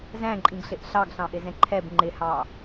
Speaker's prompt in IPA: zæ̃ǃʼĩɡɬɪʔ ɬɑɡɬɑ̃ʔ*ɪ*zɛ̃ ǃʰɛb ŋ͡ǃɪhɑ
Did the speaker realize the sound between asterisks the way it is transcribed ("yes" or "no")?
yes